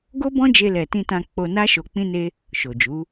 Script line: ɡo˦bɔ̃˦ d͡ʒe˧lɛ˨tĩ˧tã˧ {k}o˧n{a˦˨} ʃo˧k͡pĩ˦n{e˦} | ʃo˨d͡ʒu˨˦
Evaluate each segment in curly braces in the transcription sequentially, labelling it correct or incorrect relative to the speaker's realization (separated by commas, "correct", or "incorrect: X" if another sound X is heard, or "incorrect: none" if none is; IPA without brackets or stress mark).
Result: incorrect: k͡p, incorrect: a˦, correct